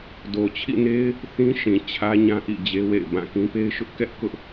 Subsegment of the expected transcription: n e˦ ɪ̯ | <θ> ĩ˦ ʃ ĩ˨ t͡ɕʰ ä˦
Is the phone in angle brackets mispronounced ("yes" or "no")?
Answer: no